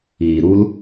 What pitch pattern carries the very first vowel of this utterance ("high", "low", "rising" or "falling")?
low